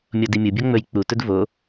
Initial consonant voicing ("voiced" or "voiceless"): voiced